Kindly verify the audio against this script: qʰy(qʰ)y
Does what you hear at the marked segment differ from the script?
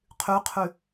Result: no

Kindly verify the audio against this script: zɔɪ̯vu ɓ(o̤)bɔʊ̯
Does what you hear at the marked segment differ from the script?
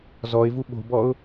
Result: no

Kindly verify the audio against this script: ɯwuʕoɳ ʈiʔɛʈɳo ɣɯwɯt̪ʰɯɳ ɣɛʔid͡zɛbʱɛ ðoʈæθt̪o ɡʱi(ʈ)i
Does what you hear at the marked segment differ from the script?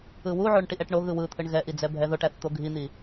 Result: yes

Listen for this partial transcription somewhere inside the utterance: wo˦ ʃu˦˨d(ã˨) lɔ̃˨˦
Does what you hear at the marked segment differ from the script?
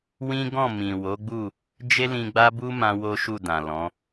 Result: no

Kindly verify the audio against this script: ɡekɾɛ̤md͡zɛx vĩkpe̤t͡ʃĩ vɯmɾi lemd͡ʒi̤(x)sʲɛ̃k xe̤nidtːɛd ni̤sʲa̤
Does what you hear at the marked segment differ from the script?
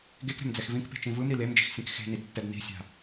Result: no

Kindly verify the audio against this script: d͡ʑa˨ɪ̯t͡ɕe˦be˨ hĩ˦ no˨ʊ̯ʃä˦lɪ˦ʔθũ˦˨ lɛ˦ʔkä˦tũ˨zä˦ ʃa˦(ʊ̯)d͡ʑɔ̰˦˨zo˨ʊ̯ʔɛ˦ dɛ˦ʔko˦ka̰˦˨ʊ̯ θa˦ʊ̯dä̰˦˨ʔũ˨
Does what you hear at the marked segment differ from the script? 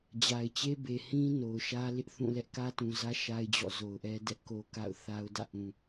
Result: yes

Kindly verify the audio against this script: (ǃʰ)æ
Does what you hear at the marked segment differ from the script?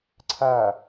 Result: yes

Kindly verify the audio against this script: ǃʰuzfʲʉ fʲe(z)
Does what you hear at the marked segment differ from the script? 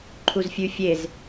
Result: no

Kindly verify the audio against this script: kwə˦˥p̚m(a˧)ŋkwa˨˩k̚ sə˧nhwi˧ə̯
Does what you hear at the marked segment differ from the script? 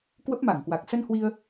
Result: yes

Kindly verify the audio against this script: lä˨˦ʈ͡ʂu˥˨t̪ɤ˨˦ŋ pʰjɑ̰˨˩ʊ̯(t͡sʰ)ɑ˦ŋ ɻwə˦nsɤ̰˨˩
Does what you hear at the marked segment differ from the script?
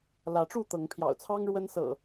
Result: no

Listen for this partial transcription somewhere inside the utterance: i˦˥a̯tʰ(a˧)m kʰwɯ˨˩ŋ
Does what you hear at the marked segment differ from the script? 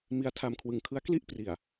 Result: no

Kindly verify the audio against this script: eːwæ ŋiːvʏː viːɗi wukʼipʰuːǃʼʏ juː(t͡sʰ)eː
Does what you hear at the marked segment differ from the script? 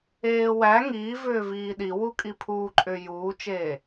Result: yes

